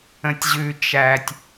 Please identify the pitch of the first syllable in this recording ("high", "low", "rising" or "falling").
low